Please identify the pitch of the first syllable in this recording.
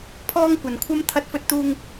high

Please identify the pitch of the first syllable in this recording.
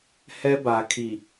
high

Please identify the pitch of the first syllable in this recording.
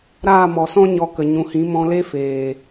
falling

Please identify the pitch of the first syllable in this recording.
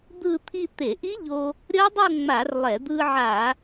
falling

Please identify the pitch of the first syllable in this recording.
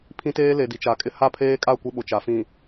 high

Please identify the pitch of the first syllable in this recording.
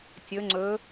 rising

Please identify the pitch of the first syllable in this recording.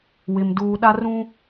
low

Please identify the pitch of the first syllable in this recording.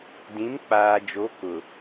rising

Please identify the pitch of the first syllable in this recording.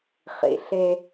low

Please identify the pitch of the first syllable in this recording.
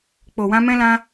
low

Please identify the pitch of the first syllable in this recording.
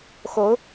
rising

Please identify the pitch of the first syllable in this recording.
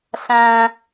low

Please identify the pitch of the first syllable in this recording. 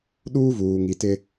high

